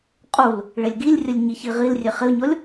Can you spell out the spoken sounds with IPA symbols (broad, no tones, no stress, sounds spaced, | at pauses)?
qʼ u l | ɭ e lʲ ɡ i lʲ rʲ ə lʲ ɲ i ç i ʁ i l rʲ e χ ɪ o̯ ɲ ɔ lʲ